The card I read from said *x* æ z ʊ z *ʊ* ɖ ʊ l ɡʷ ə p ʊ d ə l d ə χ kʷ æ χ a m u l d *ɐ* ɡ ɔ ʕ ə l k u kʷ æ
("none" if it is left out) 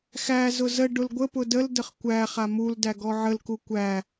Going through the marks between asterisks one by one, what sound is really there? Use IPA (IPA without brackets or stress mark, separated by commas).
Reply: x, ə, æ